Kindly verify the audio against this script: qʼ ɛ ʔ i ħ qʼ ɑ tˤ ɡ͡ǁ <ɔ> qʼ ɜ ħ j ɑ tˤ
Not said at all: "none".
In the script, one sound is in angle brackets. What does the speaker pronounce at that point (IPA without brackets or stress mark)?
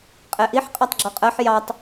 ɔ